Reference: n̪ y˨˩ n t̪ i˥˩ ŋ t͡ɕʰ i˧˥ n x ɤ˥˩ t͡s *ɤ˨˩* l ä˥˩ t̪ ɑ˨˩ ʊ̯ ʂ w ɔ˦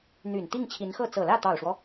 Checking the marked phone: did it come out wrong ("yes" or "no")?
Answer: no